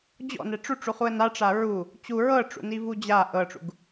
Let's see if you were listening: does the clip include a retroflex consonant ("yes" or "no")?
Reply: yes